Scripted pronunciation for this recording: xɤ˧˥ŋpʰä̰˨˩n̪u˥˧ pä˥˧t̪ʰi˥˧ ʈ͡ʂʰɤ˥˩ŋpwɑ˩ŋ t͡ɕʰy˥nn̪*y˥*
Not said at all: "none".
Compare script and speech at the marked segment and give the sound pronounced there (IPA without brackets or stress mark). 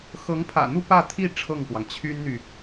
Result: y˨